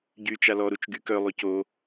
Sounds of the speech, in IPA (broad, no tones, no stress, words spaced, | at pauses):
ɟyːt͡ʃalɔ ɾut͡ʃɡykœ lˠyco